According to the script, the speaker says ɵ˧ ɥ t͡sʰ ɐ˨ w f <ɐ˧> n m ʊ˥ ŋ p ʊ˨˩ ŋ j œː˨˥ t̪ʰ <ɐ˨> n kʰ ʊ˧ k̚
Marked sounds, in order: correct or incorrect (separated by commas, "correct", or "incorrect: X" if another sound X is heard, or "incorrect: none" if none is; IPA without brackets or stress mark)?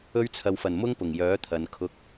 incorrect: ɐ˨˩, correct